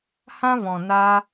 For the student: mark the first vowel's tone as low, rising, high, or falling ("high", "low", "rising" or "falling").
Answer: high